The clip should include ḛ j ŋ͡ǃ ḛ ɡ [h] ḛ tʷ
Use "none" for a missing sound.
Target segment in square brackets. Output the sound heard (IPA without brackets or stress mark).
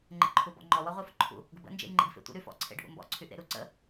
f